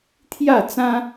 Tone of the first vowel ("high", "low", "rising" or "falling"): falling